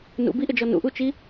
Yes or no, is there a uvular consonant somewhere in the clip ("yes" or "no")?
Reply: no